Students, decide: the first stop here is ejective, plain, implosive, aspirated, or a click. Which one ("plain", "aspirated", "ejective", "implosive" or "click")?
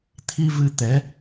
aspirated